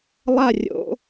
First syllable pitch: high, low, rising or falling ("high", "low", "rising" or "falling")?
falling